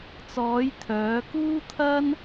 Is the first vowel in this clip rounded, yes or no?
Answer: yes